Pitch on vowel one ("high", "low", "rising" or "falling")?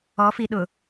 rising